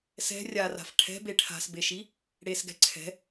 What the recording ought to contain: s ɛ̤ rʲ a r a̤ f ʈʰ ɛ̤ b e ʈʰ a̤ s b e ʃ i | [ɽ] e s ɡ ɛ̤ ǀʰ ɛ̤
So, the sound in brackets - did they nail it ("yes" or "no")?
yes